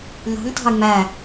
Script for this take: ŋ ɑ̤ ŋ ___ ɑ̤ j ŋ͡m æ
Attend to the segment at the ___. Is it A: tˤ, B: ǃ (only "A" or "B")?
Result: A